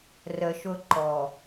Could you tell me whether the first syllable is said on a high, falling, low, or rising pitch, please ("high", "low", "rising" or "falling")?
low